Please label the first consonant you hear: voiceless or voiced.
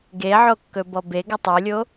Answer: voiced